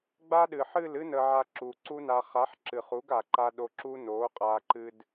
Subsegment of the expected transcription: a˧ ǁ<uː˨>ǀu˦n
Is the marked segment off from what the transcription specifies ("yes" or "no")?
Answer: yes